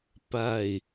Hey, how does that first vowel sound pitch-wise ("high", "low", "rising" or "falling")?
low